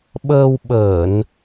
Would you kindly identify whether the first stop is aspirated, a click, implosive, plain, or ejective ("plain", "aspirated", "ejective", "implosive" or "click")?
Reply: implosive